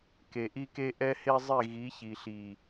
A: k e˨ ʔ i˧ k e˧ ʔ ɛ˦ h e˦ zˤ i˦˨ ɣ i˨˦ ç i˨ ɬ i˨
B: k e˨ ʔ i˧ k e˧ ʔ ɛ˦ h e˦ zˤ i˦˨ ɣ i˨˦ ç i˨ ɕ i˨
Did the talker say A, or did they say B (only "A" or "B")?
A